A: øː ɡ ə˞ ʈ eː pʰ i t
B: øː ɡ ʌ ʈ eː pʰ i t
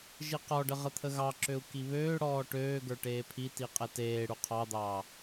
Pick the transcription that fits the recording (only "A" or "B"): A